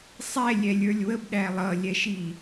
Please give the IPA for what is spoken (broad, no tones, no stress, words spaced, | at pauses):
sˤɛ lʲɛlʲə˞lʲwəbɗæ lˠʌlʲɛʃi